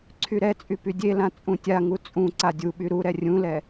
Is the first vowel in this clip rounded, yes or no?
yes